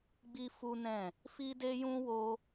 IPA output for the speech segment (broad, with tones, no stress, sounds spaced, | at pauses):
ɡ͡b i˦ f u˦ n ɛ̃˦˨ | f i˦ d e˦ j ũ˦ w o˦